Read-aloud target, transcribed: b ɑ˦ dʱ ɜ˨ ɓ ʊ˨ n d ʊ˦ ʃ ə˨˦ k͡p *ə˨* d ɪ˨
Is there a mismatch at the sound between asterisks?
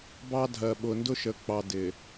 yes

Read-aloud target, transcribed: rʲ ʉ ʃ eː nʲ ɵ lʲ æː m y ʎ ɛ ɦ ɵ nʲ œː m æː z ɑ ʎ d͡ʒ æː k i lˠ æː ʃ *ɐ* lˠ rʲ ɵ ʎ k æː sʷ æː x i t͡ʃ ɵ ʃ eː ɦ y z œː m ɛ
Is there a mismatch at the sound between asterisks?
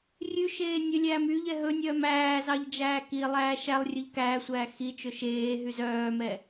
yes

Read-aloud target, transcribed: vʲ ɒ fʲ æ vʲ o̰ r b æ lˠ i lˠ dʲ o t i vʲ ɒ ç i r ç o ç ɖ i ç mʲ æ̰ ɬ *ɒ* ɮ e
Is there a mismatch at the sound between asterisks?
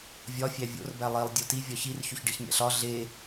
no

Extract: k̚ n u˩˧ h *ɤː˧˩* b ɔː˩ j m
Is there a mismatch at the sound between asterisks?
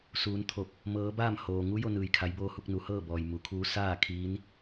yes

